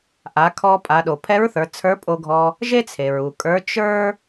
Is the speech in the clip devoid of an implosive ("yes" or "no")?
no